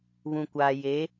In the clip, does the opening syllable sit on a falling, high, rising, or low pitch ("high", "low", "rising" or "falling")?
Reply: low